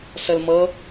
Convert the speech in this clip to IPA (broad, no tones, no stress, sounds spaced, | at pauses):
s ə l m ɤ